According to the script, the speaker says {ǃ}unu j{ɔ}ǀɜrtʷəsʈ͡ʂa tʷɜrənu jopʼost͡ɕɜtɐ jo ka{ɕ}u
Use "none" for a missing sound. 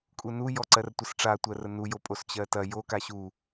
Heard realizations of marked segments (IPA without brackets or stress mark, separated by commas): kʼ, ɔ, ɕ